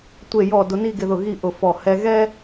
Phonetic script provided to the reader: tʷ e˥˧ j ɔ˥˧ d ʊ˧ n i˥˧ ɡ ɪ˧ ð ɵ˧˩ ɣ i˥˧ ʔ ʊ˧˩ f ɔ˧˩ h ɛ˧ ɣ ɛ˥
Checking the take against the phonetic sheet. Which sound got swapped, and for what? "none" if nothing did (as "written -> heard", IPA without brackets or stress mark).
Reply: ɵ˧˩ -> ʊ˧˩